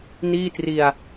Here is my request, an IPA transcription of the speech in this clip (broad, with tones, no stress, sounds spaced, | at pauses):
n iː˥˩ t r i˧ a̯